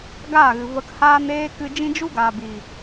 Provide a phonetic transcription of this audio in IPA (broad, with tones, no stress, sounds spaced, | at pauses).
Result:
ɡ aː˦˨ ɣ ɨ˨ v ə˧ k h aː˧ n eː˧ k ɨ˧ d͡ʒ ĩ˦ d͡ʒ u˦ ɡ aː˨ b i˨